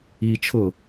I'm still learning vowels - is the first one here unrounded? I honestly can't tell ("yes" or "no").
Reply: yes